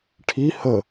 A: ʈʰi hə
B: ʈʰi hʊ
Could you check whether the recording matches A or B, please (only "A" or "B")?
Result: A